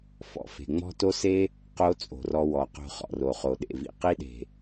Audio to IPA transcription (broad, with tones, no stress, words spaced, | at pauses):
fɔ̰˨ fe̤˨ŋ͡mɔ̤˦to˦se˦ | qo˦ t͡sʼo̤˨rɔ˧wɔ˨qo̤˧ χɔ̰˨ro˨χo˨ ɗḛ˨vḭ˨qi˦ɗe̤˨